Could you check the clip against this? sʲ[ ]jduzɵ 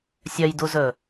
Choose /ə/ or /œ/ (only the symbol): œ